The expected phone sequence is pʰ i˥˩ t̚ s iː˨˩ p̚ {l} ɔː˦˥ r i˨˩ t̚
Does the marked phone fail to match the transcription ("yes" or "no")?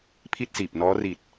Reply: yes